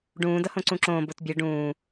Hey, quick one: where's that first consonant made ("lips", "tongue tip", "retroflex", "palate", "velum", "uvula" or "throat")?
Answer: retroflex